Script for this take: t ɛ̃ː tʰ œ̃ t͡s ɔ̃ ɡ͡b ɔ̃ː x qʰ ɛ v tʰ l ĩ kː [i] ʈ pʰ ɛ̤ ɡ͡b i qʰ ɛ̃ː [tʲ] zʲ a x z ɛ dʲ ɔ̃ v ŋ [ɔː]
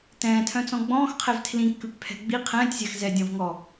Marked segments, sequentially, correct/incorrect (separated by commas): incorrect, correct, incorrect